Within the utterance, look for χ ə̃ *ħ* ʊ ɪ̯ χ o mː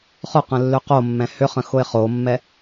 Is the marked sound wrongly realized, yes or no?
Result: yes